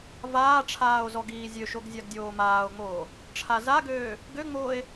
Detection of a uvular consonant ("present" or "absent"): absent